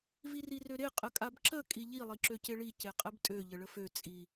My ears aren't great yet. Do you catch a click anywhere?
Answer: yes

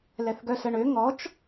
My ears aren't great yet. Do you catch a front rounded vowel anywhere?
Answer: yes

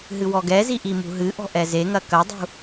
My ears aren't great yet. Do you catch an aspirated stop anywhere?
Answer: no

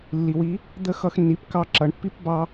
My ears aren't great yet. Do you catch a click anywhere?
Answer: yes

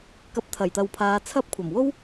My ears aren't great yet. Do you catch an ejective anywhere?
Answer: no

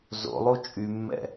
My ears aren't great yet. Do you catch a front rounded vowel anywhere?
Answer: yes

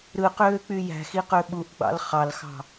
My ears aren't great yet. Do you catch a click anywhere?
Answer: no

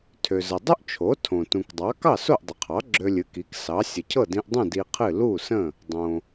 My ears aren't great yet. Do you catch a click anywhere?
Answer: yes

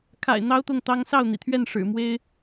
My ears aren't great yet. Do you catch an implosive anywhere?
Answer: no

